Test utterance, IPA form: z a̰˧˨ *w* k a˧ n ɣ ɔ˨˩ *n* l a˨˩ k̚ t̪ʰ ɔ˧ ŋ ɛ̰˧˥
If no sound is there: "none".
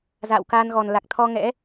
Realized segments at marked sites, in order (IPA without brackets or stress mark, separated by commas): w, n